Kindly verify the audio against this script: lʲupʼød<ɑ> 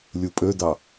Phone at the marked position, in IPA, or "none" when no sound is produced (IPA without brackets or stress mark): ɑ